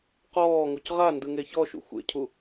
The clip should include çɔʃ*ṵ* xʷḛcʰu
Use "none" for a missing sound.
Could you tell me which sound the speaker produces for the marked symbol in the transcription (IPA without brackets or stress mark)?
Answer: ṵ